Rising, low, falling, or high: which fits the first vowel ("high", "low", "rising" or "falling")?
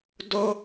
high